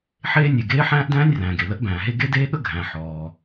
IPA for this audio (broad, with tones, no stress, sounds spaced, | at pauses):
ħ eː˥ nʲ e˩ ɡ eː˥ ħ æ̃ː˥ ʔ d æ̃ː˥ nʲ r æ̃ː˩ ɡ e˩ l ə˥ ʔ b æ̃ː˩ ɦ e˥ ɡ e˥ d eː˥ ɠ ə˥ ɡʱ æ̃˩ ħ ɔː˩